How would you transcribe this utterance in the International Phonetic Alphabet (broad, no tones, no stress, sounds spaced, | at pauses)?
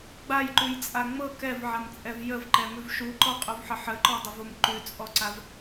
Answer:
ɡ͡b a j ǃ ʉ j t͡sʼ a ŋ͡m ɤ k ɛ v ʕ a m t͡sʼ ɛ v j ə v ǃ ɛ m ʉ v ʃ u ǃ ɔ qʼ u v ħ ə ħ ə ǃ ɔ dˤ ə v o m ǃ ʉ t͡sʼ ɔ ǀ a v